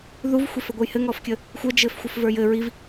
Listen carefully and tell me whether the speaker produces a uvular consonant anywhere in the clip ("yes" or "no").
no